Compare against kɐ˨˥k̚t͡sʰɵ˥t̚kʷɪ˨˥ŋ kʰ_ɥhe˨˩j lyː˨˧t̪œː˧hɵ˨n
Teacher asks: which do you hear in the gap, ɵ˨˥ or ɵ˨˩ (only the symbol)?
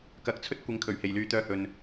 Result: ɵ˨˩